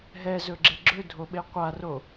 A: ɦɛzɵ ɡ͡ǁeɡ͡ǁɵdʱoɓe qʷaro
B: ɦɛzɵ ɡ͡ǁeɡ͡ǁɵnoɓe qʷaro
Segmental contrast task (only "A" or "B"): A